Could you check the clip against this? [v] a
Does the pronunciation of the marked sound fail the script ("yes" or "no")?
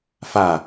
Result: yes